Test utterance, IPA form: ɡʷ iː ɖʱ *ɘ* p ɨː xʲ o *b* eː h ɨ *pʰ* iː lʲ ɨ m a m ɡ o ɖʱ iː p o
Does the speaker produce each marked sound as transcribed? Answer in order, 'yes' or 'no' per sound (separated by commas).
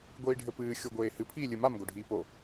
yes, no, yes